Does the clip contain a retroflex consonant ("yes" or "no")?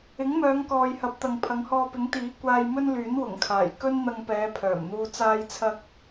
no